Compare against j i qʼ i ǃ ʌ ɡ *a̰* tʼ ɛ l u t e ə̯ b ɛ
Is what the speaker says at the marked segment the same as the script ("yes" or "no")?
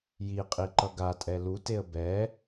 no